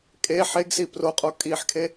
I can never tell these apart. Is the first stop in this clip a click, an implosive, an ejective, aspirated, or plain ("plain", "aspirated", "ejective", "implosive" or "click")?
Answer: ejective